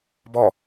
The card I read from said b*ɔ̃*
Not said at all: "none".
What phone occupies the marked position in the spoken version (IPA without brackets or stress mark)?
ɔ